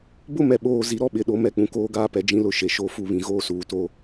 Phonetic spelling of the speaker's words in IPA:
b ʊ˦ m ɛ˨ ɓ oː˨ z i˨ ɾ ɔ˦ ɓ ɪ˨ ɗ o˦ m ɛ˦ k͡p ũ˨ k oː˦ ɡ aː˦ p ɛ˨ d͡ʒ ĩ˦ l ʊ˦ ʃ e˨ ʃ o˦˨ f u˦˨ β ĩ˨ ɣ oː˦ s uː˨ t o˦

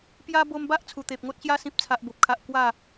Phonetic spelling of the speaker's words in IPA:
p j a˦ b o˧ m b a˦ ʔ t͡sʰ u˨˩ t̪ e˨ p̚ ŋ o˦ t̚ ɕ j a˦ s ĩ˨ p̚ t͡sʰ a˨ ʔ b o˨ p̚ kʰ a˨ ʔ k w a˥˧

